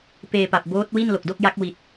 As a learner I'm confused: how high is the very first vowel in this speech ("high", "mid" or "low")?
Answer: mid